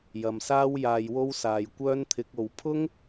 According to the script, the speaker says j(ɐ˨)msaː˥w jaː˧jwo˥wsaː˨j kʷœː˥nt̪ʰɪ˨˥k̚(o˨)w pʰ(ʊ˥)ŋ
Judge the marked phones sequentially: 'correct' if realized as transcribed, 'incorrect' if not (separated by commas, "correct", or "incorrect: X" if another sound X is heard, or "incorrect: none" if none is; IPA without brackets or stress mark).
correct, correct, correct